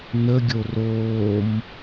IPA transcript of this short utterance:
nəɡʲo roːm

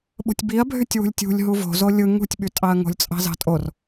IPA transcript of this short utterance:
ɓo̤tʲbiɐ̯bʱytʲ wṳlʲtʲṳlʲ ɦuvo̤zo lʲɯ ŋṳtʲɓytʼɑɐ̯ ŋo̤lʲt͡sʼɑ̤zɑ̤tʼor

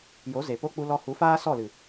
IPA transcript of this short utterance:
jo˨˦ze˨ po˦ k͡pu˧lɔ˧hu˨˦faː˦ sɔ˦˨lɨ˨

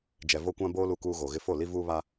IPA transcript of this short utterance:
d͡ʒɛ˨vo˦kʷã˦bo˦ lu˨kuː˨ ɣo˨ɣɪ˦ fo˦˨ li˦vuː˦βa˦

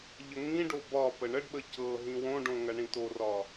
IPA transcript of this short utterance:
ʎəŋĩɖo bɒ pəɳəɖɓə cɤ ɦĩwõɖõ ŋɐɳĩtorɒ

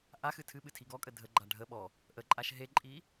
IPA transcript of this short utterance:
ʔaxɨ tʰɨɓɨ tʰiɡɔkʼə dʱəɡ͡ǃa ɖʱə ɓɔ | ʔəǃʼaʃ ɦeǃʼi

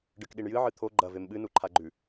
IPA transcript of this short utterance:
ɖɨkɗiɳjɨ ʕɨt̪ʰo ɡ͡ǃɐ vemɓɨ nuǃʰaɡ͡ǃʉ

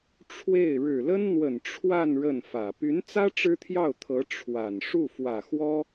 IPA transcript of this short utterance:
ʈ͡ʂʰwe˥˩ɪ̯ ɻɻ̩˨˩lə˥nn̪wə˨˩n ʈ͡ʂʰwa˥˧n ɻə˥˩nfä˨˩ py˧˥nt͡sä˥ ʈ͡ʂɻ̩˥t̪ʰjɑ˥˩ʊ̯t̪ʰɤ˧˥ ʈ͡ʂʰwa˨˩n ʂu˥˩fwä˨˩xwɔ˥

